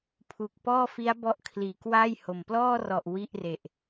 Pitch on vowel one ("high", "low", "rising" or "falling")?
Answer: low